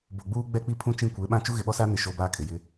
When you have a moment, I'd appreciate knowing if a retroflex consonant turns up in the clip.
no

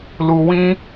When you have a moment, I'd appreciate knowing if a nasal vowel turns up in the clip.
yes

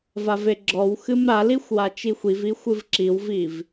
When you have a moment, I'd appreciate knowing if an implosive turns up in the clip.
no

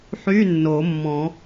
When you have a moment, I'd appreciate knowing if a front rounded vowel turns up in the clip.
yes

